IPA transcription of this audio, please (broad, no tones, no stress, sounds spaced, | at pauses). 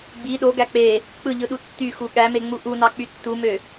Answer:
ɡ͡b i ɗ o ɡ æ k͡p e | k͡p ɯ ʎ ɯ ɗ u tː y x u ɠ æ m e ŋ͡m u ʔ u n ɑ k͡p y tː u m ø